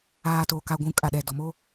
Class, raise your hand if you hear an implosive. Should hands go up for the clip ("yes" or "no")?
yes